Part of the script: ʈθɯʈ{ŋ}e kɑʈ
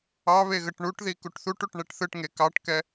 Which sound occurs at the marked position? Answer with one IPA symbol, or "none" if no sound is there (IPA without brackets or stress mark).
ŋ